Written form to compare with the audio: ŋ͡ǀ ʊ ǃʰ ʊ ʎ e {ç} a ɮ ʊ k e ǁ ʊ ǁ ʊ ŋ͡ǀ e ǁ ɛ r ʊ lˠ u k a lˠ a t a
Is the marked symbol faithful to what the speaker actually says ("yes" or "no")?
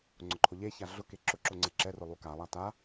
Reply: yes